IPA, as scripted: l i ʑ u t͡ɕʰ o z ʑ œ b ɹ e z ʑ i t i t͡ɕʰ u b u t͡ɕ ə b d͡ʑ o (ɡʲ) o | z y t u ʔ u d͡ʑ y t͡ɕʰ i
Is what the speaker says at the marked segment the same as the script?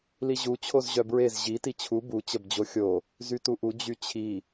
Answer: no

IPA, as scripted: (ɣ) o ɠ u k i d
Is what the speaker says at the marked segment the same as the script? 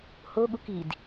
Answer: no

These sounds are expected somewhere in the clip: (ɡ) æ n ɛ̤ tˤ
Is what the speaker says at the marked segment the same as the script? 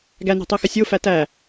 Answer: yes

